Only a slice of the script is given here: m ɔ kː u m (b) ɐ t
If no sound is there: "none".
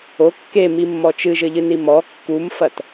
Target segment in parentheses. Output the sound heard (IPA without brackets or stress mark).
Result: f